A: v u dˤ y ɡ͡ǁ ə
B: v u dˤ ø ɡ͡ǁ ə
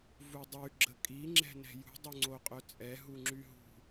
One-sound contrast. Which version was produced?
A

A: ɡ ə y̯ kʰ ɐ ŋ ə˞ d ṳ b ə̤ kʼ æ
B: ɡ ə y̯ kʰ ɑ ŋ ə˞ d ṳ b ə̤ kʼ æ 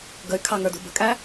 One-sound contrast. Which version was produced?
B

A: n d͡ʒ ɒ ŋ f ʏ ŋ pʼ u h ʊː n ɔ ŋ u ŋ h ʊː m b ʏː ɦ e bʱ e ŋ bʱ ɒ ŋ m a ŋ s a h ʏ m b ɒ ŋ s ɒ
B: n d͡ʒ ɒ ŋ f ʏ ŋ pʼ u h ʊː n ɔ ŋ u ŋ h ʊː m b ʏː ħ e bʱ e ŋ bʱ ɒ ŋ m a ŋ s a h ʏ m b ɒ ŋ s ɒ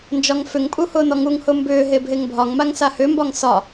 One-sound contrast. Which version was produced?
A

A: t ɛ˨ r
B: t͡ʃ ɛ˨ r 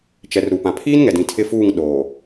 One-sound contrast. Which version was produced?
B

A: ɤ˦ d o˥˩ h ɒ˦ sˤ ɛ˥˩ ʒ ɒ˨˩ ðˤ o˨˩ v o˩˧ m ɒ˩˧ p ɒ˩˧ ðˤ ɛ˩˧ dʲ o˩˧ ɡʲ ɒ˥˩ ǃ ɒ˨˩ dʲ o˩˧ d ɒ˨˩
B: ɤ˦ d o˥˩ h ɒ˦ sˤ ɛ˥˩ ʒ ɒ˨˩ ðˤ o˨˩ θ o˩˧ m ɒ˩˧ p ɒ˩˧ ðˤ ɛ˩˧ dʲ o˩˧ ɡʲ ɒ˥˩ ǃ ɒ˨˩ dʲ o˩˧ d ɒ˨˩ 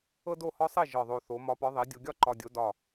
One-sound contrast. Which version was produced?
B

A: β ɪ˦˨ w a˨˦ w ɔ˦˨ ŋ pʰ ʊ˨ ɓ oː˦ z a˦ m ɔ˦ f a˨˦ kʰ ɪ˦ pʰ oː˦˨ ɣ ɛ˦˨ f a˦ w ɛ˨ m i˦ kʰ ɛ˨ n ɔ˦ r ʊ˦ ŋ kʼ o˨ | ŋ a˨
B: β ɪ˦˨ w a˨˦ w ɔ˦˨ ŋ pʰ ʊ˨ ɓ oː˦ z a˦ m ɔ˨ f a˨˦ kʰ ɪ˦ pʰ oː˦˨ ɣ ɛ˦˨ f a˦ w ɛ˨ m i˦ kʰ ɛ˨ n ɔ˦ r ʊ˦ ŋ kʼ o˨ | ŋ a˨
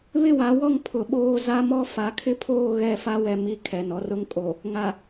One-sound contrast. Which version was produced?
A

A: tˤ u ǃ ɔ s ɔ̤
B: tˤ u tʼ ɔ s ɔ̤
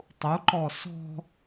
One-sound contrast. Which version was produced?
A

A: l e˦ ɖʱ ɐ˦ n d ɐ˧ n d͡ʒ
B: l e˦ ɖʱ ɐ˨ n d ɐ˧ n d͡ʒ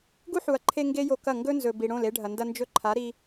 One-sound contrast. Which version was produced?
B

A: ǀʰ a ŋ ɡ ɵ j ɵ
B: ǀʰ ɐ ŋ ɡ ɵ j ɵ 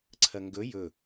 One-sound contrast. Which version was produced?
B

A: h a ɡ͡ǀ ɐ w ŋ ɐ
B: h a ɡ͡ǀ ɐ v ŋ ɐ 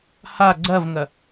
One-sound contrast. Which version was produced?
B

